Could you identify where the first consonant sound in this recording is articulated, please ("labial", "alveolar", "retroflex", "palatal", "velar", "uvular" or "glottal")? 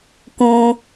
velar